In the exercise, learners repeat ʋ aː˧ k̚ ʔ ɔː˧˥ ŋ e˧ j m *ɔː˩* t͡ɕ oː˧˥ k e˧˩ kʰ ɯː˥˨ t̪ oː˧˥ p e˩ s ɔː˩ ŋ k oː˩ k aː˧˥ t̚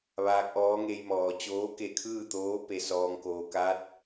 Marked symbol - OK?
yes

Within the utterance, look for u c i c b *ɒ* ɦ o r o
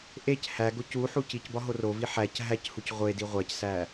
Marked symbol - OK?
yes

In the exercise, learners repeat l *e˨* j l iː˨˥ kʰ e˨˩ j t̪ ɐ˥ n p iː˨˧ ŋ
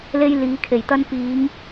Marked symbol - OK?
no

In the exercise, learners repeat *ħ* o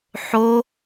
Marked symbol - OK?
yes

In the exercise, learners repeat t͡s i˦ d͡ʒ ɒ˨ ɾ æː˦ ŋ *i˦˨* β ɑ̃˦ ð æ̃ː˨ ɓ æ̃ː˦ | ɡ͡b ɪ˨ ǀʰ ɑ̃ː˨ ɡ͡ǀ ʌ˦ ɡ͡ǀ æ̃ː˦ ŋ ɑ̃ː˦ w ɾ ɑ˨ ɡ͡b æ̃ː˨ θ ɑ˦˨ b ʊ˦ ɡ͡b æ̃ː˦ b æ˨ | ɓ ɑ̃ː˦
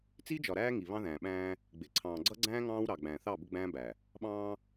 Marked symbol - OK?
no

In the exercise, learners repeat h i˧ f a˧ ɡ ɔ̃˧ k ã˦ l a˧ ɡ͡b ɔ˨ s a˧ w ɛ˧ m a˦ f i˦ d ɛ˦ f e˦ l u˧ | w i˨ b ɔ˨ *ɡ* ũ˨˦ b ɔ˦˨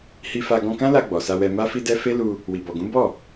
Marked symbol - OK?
yes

